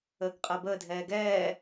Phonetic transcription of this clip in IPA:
əː ɡ qʼ əː b əː dʱ ɛː ɡ ɛː

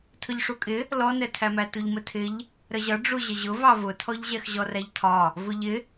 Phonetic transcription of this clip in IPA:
tʰ ʊ ʎ ʂ u kʼ ɪ | l ɔ n ɛ tʰ æ m æ t u ʎ m ə tʰ ɪ ʎ | ɾ ə ʑ ʌ ɖ͡ʐ u ʑ ə ʑ ʊ v ɑ v ʊ tʰ ɔ ʎ ʑ ɛ x ʑ ɔ r æ ʎ tʰ ɒ | v ʊ ʎ ɪ

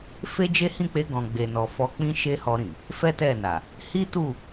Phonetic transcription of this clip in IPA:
f e˦ d͡ʒ e˦ h ĩ˦˨ k͡p e˧ ɡ ɔ̃˨ ɡ͡b e˨ n ɔ˨ f ɔ˧ k͡p ĩ˦ ʃ e˦ h ɔ˧ ɾ ĩ˨ | f ɛ˦ t ɛ˦˨ n a˨ | h i˦ t u˦˨

